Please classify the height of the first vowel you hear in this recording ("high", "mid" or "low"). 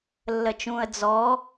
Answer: mid